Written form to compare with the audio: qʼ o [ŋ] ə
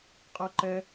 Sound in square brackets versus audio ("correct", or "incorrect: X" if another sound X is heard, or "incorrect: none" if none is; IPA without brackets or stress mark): incorrect: ǃ